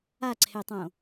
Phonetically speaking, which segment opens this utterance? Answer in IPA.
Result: a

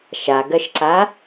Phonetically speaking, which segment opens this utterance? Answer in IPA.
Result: ʃ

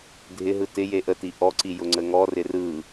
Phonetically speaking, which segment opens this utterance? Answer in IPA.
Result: dʱ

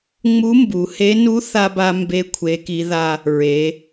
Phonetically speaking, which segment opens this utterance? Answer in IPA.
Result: ŋ͡m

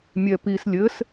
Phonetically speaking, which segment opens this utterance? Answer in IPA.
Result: mʲ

